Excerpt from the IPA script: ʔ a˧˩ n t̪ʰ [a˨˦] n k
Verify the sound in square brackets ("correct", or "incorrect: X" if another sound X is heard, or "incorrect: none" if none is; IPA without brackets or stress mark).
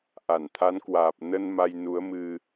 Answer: correct